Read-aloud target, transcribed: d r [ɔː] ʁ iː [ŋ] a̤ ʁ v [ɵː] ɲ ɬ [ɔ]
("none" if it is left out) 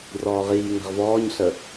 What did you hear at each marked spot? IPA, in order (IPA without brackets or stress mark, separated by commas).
ɔː, ŋ, ɔː, ə